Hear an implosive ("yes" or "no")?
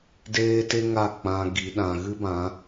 yes